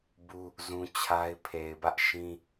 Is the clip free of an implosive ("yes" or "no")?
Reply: yes